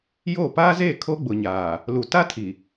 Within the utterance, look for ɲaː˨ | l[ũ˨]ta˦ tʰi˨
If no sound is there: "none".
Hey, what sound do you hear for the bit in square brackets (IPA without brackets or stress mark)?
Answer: u˨